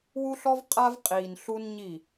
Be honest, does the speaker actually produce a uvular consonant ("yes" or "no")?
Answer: yes